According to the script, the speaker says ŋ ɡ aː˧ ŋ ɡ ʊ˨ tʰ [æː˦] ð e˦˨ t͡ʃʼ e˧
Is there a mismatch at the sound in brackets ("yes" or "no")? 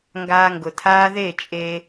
yes